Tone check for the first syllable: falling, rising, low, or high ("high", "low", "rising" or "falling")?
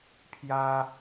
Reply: high